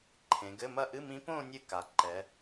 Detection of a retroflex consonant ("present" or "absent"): absent